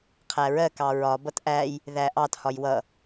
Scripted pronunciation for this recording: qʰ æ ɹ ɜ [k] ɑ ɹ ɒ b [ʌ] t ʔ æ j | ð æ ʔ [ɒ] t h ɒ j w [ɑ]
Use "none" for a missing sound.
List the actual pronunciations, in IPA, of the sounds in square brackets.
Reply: k, ʌ, ɑ, ʌ

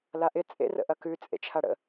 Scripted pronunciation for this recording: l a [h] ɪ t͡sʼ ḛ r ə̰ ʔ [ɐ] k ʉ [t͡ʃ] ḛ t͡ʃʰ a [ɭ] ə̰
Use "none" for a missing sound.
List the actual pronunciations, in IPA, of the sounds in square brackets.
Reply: ʔ, ɐ, t͡sʼ, ɽ

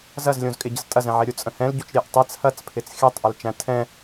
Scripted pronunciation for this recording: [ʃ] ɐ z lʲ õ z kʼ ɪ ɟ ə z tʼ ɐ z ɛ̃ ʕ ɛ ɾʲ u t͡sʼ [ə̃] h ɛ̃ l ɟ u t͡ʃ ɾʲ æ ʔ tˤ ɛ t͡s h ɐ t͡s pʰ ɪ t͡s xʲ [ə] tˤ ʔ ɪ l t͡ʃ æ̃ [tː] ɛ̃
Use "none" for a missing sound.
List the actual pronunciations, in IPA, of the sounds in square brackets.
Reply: z, ə̃, æ, tʰ

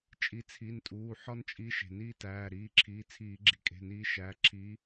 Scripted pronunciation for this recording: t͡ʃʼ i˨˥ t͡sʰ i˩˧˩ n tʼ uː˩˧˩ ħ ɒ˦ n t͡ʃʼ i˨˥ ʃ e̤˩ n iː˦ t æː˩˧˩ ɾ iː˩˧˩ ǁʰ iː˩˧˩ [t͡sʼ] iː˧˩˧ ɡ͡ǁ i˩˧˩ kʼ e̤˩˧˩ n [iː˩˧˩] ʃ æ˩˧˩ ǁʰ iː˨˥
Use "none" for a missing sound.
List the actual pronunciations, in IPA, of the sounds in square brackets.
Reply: t͡sʰ, iː˨˥

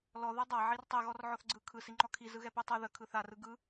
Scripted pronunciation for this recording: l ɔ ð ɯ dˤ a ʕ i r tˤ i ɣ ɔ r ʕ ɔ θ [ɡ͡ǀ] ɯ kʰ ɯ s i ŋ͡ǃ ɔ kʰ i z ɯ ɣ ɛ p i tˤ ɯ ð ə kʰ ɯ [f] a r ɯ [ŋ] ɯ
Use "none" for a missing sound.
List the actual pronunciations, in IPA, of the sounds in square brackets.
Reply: ɡ͡ǀ, θ, ɡ

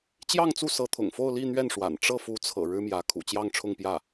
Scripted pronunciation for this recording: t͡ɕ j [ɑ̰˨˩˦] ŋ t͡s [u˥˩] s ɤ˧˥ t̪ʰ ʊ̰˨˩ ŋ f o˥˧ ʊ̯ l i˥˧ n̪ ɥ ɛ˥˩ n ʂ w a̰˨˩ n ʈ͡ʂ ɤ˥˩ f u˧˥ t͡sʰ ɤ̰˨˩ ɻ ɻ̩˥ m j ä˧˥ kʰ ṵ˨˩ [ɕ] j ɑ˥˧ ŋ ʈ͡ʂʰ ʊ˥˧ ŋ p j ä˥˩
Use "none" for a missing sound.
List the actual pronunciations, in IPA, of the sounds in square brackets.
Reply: ɑ˥˧, u˥˩, t͡ɕ

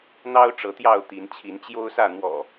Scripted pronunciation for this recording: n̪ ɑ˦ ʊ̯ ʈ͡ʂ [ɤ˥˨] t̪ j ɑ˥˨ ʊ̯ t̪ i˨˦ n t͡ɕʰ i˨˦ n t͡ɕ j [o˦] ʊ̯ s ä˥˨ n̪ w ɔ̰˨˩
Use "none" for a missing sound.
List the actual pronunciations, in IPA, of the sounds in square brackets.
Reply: ɤ˨˦, o˦

